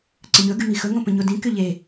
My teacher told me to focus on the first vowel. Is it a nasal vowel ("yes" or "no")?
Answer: yes